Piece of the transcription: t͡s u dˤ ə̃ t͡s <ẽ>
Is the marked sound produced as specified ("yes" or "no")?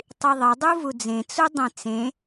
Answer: yes